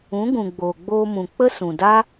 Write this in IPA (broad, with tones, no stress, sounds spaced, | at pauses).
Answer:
ũ˨˦ ɡ ũ˨ ɡ͡b oː˨ ɡ͡b oː˧ m ũ˨ k͡p ə˦ s ũ˨ d a˦